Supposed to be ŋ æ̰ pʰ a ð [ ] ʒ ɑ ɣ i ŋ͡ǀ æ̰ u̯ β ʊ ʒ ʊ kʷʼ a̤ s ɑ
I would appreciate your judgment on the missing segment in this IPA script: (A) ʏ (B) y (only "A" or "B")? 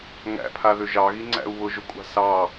A